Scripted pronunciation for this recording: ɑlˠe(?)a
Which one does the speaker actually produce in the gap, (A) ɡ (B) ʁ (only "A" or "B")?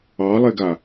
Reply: A